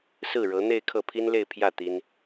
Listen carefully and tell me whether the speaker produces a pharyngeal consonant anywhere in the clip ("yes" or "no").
no